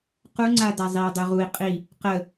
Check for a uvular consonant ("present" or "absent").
present